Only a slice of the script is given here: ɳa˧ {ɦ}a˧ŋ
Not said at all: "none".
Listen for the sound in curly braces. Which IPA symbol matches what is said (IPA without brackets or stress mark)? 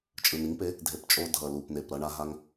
ɦ